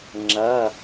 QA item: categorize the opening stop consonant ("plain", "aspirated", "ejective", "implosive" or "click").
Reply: click